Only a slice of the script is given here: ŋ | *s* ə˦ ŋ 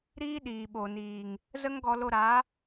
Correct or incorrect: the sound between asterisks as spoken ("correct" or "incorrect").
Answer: incorrect